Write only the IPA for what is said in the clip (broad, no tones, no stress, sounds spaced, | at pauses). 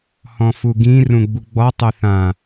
h ɔ̃ f u ɡ ĩ r ũ ɡ͡b u ɡ͡b ɔ tˤ ʊ θ ã